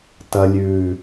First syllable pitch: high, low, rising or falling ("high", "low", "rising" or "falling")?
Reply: high